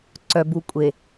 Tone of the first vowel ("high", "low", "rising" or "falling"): low